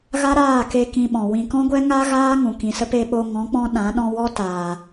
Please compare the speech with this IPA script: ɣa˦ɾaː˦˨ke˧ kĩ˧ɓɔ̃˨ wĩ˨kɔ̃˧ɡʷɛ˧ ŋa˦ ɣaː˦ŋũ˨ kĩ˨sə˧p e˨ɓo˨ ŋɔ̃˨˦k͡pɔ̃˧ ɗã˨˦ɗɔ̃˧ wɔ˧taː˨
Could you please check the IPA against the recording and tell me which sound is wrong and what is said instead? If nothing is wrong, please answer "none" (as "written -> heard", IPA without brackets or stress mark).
none